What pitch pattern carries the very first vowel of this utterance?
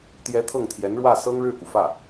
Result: rising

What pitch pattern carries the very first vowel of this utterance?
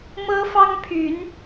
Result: high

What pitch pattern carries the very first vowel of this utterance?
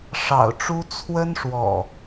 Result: low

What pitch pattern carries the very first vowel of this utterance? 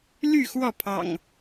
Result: falling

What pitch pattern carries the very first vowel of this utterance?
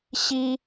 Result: high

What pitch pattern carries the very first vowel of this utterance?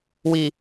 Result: low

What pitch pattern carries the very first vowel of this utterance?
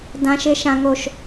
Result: high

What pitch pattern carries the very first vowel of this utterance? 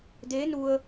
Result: rising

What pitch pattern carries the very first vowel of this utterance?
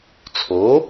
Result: rising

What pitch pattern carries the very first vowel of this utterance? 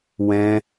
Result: low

